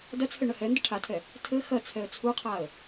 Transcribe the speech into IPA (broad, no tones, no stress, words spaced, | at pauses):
dɐt͡sʰɘ ɳɐhɛndɘ ʈʰatʰɛ | tʰɘ xɐt͡sʰɛə̯ t͡sʰuqʰaə̯